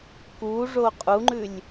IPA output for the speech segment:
kuʐo qʼuŋ͡ǃʉlʲ

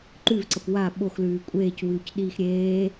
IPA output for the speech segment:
ǃʉvǀɐp wa ɓoxlʉː kʷʼeːcwʉːcɗiːx ɾʲeː

